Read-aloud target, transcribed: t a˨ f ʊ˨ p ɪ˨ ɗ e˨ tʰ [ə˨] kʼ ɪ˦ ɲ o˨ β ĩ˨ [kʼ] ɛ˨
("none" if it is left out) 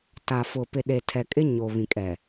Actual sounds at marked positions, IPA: ɛ˨, kʼ

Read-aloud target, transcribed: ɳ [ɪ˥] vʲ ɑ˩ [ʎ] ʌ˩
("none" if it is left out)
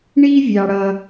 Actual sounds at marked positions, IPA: i˥, ɽ

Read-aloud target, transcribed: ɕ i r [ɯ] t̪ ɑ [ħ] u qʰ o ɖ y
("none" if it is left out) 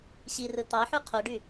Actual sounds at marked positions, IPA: ɯ, ħ

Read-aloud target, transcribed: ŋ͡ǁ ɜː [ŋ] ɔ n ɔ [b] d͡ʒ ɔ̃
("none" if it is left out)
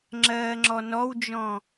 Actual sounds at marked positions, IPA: ŋ͡ǁ, w

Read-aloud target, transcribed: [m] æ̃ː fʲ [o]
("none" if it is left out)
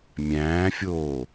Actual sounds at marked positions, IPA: mʲ, oː

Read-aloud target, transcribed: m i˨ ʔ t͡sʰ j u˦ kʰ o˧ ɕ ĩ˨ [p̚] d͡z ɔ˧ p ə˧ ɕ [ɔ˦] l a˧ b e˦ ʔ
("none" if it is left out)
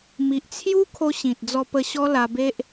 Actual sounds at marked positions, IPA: t̚, ɔ˦

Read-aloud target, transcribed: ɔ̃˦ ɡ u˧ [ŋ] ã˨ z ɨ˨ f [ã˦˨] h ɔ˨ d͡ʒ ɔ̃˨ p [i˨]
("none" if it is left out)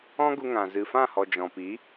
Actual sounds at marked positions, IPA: ŋ, ã˦˨, i˨˦

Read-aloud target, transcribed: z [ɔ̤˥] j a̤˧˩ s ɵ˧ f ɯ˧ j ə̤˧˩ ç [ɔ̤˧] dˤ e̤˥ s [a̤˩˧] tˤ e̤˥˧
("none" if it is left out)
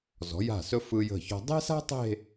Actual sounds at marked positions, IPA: ɔ̤˩˧, ɔ̤˧, a̤˥

